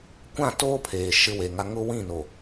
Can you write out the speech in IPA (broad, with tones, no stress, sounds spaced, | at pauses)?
kʷ ã˦˨ t oː˦ pʰ eː˨ ʃ ɪ˦ w e˨ ŋ a˦ ŋ ʊ˦ w ĩ˦˨ n o˨